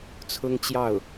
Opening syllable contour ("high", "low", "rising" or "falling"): high